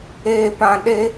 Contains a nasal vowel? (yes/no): yes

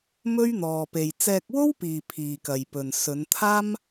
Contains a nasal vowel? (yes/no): no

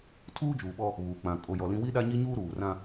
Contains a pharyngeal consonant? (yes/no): no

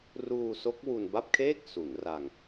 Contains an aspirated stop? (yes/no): yes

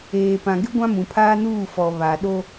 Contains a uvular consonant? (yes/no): no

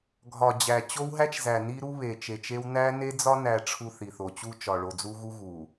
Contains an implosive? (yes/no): no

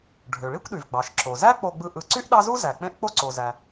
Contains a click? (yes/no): yes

